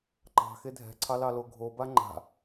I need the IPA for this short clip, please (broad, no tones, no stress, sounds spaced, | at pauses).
ǃ ɑ̤ x e dʱ ɛ̤ ǀʰ ɑ l ɑ l o ɡʱ o b a ŋ͡ǃ a̤